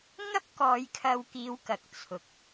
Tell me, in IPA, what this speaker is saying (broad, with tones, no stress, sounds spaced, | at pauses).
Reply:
ŋ ɐ˥ p̚ k ɔː˨˧ j kʰ ɐ˧ w k iː˨˧ w k ɐ˨ k̚ t͡sʰ ʊ˨ k̚